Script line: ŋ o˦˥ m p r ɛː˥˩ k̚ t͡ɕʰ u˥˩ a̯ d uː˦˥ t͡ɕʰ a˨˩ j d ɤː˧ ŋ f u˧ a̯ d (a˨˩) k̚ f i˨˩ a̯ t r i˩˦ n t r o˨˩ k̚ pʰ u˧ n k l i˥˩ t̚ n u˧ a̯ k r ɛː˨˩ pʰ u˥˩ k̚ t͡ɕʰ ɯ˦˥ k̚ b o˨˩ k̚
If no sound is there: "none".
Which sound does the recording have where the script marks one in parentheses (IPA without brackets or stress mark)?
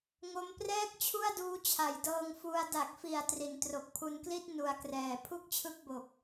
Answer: a˨˩